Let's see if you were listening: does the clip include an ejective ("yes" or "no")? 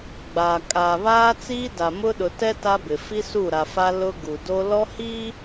yes